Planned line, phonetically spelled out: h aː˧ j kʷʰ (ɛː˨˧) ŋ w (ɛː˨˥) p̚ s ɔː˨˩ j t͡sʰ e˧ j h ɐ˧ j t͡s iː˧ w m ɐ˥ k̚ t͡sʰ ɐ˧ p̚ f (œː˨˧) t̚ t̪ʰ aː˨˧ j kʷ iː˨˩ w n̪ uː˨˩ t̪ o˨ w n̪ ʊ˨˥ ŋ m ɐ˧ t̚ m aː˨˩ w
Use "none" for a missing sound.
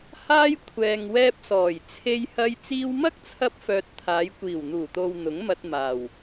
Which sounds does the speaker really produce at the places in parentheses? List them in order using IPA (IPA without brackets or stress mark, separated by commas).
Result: ɛː˨, ɛː˧, œː˨